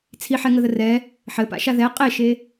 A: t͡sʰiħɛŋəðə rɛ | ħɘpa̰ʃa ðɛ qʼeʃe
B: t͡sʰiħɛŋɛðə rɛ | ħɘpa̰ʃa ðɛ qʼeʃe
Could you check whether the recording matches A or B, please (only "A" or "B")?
A